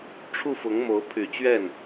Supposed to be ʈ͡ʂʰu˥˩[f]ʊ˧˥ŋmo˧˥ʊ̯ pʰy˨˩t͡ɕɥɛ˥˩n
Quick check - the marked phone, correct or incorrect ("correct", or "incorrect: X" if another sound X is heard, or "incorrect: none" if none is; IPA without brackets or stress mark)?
correct